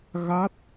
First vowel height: low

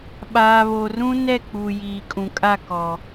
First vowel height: low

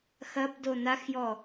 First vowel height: low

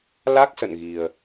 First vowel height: low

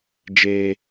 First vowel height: mid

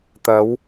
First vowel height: low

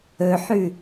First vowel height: mid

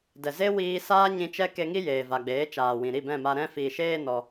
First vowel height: mid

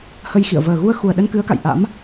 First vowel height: mid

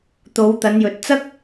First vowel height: mid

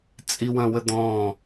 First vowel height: high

